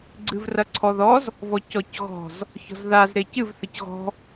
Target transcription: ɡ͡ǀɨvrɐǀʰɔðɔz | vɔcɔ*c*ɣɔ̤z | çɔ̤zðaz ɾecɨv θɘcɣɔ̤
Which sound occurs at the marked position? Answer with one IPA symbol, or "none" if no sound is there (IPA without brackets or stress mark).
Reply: c